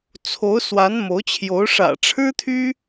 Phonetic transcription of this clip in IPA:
t͡sʰo˧˥ʊ̯swa˧˥n mo˧˥ʊ̯t͡ɕʰjo˧˥ʊ̯ ʂä̰˨˩ʈ͡ʂʰɻ̩˥t̪ʰy˥

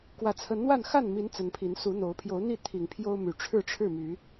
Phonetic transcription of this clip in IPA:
kwä˨˩t͡sʰə˨˦nn̪wa˥˨n xa˥˨nmi˨˦n t͡sə˨˦npʰi˨˦n su˨˦n̪o˨˦ʊ̯ pʰjo˨˦ʊ̯n̪i˥˨ t̪ʰi˨˩ŋpʰjo˦ʊ̯my˨˩ ʈ͡ʂʰɻ̩˥˨ʈ͡ʂʰɻ̩˥˨my˨˦

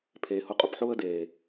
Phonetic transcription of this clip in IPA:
pʰeː˨hʊ˧qʼʊ˧pħʊː˦ə̯ deː˨

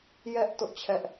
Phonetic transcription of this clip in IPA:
jɛ˦ʔ tʊ˦ʔt͡ɕʰɛ˦ʔ

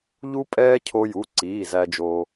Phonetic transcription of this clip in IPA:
ʎu˥pʼɛː˥ cʰo˥ju˧˥˧ ǀiː˧˥˧ zæ˥d͡ʒoː˥

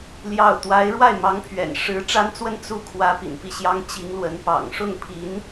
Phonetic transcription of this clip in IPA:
ljɑ˥˩ʊ̯ t̪wa˧˥ɪ̯ ɻwa˥˩ɪ̯mɑ˧˥ŋpʰɥɛ̰˨˩n ʂɻ̩˧˥ ʈ͡ʂa˥nt͡swə˥˧n t͡su˥˩ kʰwä˧˥ pḭ˨˩npi˥˩ɕjɑ˥ŋ t͡ɕi˧˥ŋlwə˧˥n pɑ̰˨˩ŋʂʊ˥˩ŋpʰi˧˥n

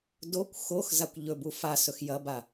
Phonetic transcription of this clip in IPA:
dokʷ xox zakʷʎɵbu fasɵx jɐba

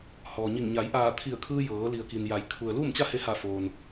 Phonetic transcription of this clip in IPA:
hɔː˩ɲi˧˩ŋ ɲa˩˧jʔaː˧˩t̪ʰi˧˩ə̯kʰɯː˧ jɤː˩˧li˩ə̯ki˩n ja˩˧jkʰu˩ə̯ luː˥˨mt͡ɕa˥˨he˧ha˧˩ foː˩n

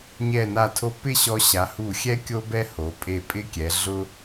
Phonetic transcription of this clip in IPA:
ɲɛ˧˩na˧˩tʰo˧ pɪ˥˧ɕɔ˧ɕa˩˧ hu˧˩xʲɛ˥ kʲo˥bɛ˥ho˩˧ pʼe˧˩ pʼɪ˥kʲɛ˩˧ɮʊ˥

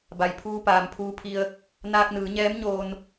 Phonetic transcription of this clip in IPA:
ba˩jpʰuː˧ paː˩mpʰuː˧pʰi˧ə̯ | naː˧k̚nɯː˩˧ɲɛː˧˥mɲoː˧n

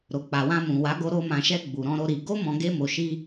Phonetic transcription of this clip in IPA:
ɾo˨k͡pa˨wã˧mũ˨ wa˨˦ɡo˧ ɾo˧ mã˨ʃɛ˧ ɡ͡bu˨ɾɔ̃˧ ɾo˧ɾi˨ ɡo˧mɔ̃˨ ɡe˧mo˨ʃi˧

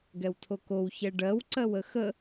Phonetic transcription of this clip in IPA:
ɡɛwtʰokow çɛɖɜw ǀɜwəxə

